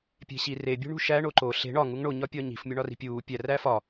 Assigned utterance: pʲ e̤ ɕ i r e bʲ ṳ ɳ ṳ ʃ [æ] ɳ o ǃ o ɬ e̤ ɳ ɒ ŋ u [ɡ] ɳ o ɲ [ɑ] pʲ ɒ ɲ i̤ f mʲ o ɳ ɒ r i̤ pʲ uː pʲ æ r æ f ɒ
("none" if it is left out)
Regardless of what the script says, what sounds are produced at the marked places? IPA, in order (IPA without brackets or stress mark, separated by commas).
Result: æ, ŋ, ɒ